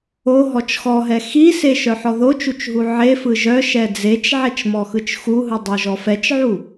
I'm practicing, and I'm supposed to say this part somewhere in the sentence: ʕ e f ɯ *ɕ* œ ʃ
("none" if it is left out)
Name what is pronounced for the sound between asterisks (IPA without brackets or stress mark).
ʒ